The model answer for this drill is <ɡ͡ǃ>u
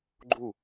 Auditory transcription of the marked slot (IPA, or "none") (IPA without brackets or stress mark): ɡ͡ǃ